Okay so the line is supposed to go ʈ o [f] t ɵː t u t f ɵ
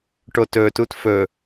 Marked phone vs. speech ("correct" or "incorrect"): incorrect